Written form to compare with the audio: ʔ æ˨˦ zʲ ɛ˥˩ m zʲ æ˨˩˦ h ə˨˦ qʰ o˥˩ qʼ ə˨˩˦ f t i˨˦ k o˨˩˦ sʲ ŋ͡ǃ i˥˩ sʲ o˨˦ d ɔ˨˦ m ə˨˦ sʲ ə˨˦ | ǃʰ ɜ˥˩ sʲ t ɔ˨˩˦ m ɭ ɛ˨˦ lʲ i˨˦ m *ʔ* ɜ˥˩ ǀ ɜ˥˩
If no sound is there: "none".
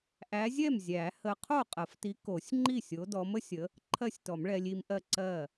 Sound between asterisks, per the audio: ʔ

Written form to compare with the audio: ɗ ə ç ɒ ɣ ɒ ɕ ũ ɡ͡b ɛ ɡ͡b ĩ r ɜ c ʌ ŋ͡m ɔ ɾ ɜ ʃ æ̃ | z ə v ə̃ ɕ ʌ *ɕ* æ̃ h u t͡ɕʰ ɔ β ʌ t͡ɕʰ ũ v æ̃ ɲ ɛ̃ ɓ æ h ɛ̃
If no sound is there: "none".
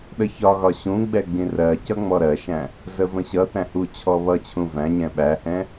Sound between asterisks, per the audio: θ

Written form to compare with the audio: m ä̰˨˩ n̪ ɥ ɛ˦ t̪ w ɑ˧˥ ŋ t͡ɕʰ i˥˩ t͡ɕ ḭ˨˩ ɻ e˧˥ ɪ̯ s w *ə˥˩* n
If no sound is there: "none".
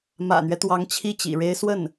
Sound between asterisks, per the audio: ə˥˩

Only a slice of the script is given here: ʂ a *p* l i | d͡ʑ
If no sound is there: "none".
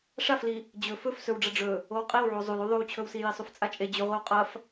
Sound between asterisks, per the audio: f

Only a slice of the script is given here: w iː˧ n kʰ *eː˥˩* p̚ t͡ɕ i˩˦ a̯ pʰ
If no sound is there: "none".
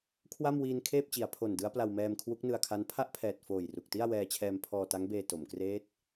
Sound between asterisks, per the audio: eː˥˩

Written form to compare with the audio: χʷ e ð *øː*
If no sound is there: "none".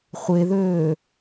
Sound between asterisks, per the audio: øː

